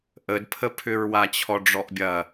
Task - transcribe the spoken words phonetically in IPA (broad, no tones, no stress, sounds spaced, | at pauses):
ʔ ə d pʰ ə pʰ ʏ ɹ w a t͡ɕʰ ɔ ɖ͡ʐ ɔ ʔ bʲ ɐ